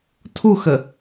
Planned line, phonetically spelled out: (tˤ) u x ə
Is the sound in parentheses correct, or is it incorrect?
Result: incorrect